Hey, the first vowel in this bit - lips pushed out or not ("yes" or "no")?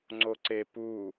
yes